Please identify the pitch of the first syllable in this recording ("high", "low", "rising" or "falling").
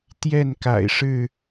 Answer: falling